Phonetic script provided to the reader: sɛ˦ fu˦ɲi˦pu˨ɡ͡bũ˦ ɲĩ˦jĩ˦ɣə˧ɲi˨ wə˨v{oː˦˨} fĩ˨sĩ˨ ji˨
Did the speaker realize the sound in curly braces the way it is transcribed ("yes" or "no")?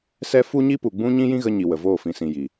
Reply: yes